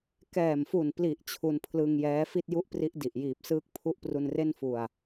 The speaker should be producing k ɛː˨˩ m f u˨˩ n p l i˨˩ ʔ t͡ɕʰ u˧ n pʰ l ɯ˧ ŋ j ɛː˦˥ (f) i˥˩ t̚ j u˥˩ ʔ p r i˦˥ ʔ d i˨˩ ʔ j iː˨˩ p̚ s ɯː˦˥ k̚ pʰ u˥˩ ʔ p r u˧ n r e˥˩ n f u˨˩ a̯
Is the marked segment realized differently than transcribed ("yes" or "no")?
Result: no